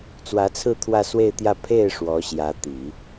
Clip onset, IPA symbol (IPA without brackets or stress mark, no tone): t͡s